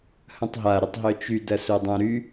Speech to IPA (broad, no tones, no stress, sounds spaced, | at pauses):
h ɐ̃ tˤ ɦ a ɾ ɪ tˤ ɦ œ t͡ʃ y d ɐ s o dˤ ã ɾ y